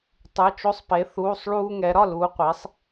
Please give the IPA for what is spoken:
tˤ ɯ˩˧˩ t͡ʃ o˧˩ sˤ p e˩˧ θ uː˩˧˩ sˤ ɭ uː˧ ŋ ɛ˩˧ ɾ ɒ˥˨ l uː˩˧ qʷ e˩˧ sˤ

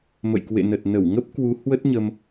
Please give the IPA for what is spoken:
m ə̰˧˨ j k w ḛ˧˨ n ə˨˩ t̚ n ə˧˩ w ŋ ə˦˥ p̚ k w u˨˦ h w ə˦˥ t̚ ɲ ə˧ m

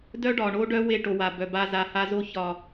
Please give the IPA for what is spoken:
d œ˦ ɖ ɒ˨ ɳ o˦ ɖ œ˦ w e˦˨ ʈ o˨ w a˨ b œ˨ b a˦ z a˨ h a˦ z o˦ ç ɒ˦˨

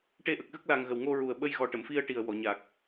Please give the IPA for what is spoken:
ʈ e˧ ʔ ə˨˩ k̚ ɣ ə˦˥ k̚ l a˨˩ ŋ ɣ ə˨˩ w ŋ o˧ ɹ u˨˩ ə̯ ɓ ə˧ j ɣ ɔ˨˩ ʈ ə˨˩˨ m f i˧ ə̯ ʈ i˨˩ ə̯ w ɔ˨˩˨ ɲ a˨˩ k̚

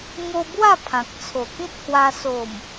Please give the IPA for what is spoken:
ŋ o˧ b w a˥˧ pʰ ã˨ k̚ t͡sʰ o˨˩ k ĩ˦ t̚ h w a˧ s o˨˩ m

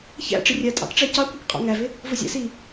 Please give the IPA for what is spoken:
ç æ̰ ʈ͡ʂ ɪ rʲ ɜ tʼ ɑ̰ k ʈ͡ʂ æ c ɑ kʷ ɑ k qʼ ɑ̰ ŋ æ v ɪ | v ʊ zʲ æ̰ s i

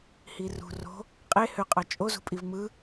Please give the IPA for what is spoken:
h i r ṳ r o̤ | qʼ e h ø qʼ ɑ t͡ʃʼ o z ṳ pʼ i v m ɯ

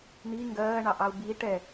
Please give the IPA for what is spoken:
n̪ i ŋ ɡ ɜː ɳ ɑ ʔ ɑ u̯ b i ʈ ɛ

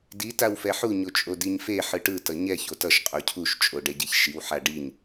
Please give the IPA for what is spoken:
d i t a w f ɛ ħ u ɲ o t͡ʃʼ o d i ɲ f e ħ ɯ ʈ ɯ t ʌ ɲ ɛ ç o t ʌ ʃ qʼ o cʰ u ʃ t͡ʃʼ o ɖ ɛ ɟ e ç ʃ i w ħ a ɖ i ɲ

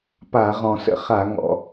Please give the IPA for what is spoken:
p a˧˩˧ ʁ ɔ̃˨˩ s ə̰˧˩˧ χ a˧˩˧ ŋ ɔ̰˨˩

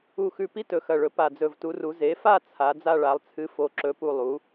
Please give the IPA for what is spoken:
u˨˩ x ʉ˨˩ p i˥˧ t ɵ˨˩ x ɐ˨˩ ɭ ɵ˩˥ p a˨˩ d͡z ɵ˨˩ v t u˩˥ r u˩˥ z e˩˥ f a˥˧ t͡sʰ a˩˥ d͡z a˥˧ ɭ a˩˥ lˠ t͡sʰ ɨ˧˥˧ f o˧˥ ǁ ɵ˧˥˧ p u˥˧ lˠ u˩˥

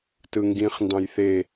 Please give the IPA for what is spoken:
t ɯ ŋ ɡ ĩ χ n d ɑ̃ j θ e

